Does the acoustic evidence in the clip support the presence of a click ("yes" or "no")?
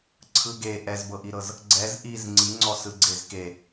yes